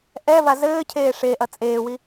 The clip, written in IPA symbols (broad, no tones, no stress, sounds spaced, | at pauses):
ʔ ɛ v a z ɘː cʰ eː ʂ e ʔ ɐ t͡sʼ eː w i